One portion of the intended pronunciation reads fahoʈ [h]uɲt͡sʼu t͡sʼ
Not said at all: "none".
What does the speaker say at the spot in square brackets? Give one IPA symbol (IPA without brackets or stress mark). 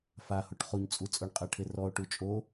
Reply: χ